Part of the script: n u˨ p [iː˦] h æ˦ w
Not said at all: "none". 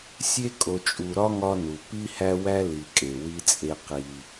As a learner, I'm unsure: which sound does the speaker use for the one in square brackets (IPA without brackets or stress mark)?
i˦